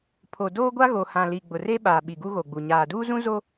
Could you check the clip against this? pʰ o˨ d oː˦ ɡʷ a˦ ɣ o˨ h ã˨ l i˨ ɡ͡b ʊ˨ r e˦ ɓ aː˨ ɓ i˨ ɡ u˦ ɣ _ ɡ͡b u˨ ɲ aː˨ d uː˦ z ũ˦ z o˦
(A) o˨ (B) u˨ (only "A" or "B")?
A